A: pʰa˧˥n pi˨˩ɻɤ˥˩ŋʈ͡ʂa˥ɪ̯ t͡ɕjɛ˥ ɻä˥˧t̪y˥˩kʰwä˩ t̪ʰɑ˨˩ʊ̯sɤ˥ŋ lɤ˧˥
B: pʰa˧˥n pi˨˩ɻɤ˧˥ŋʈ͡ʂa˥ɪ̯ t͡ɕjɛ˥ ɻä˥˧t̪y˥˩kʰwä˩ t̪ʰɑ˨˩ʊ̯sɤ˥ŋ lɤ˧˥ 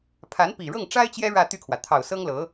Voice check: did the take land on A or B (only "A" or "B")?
A